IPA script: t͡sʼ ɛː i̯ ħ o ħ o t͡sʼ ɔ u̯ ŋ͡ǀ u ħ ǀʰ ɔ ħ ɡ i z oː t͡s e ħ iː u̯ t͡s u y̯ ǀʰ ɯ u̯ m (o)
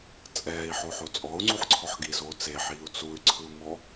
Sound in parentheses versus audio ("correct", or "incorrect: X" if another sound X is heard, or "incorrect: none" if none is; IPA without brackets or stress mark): incorrect: ɔ